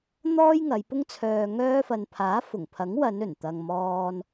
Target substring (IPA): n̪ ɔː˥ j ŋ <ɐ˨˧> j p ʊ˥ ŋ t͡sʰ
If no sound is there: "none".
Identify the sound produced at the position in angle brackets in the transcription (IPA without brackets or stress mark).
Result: ɐ˨˧